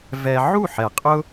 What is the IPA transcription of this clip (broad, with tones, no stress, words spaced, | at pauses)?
vɛ˧ ʕu˦˨ħɛ˨qʼʊ˦